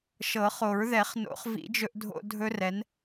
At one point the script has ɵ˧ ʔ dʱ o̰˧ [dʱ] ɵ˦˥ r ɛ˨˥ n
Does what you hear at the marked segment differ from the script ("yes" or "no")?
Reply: no